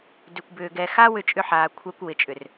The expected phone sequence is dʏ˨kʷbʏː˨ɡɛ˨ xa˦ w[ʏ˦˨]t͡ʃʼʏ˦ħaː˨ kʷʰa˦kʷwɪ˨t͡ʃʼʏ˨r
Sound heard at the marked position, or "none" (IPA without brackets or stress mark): ʏ˦˨